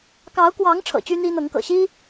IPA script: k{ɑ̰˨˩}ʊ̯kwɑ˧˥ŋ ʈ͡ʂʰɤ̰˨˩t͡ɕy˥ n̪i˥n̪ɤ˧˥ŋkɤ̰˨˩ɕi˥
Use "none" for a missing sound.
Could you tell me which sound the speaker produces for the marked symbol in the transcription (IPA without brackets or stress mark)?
ɑ˧˥